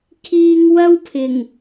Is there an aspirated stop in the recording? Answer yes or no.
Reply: yes